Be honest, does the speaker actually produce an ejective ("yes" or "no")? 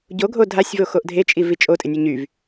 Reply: yes